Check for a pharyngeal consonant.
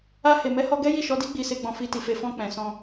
absent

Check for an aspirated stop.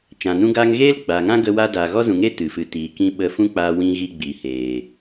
absent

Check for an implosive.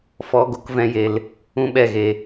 present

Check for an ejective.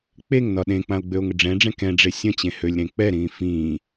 absent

